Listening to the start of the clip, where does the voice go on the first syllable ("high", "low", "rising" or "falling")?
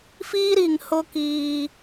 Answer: high